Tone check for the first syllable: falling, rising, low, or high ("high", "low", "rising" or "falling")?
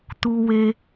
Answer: high